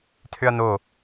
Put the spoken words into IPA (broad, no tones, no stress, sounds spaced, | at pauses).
tʰ ʏ ɐ̯ n o